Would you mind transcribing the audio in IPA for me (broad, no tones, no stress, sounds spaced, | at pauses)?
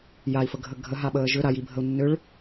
j a i̯ f ə ɡʱ ə ɡʱ ə ɦ a ɓ əː ʒ ʏ ɾ a j i bʱ ə u̯ nː ʏ ɭ